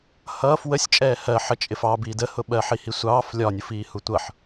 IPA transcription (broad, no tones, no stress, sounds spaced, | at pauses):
h ʌː f w ə sʲ t͡ʃʼ ɛː h ɜ ħ ə t͡ʃʼ ɪ f ɑ b iː d ə h ʊ ɓ ɜ ħ i h i sʷ ɑː f lʲ ɒ nʲ u f iː h u tʷ ʌ ħ